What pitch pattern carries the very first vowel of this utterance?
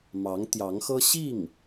rising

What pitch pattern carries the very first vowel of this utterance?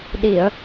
low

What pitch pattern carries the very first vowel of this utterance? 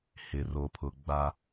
low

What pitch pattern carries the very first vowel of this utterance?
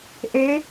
rising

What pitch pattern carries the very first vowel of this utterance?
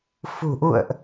low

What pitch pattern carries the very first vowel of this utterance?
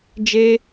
high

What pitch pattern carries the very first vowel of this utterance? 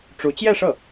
rising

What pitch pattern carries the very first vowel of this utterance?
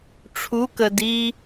rising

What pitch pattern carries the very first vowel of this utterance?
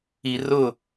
low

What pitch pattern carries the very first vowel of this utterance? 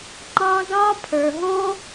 high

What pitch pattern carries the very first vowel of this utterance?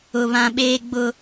low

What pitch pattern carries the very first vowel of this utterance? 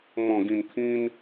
low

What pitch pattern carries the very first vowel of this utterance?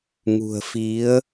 low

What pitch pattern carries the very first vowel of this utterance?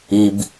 low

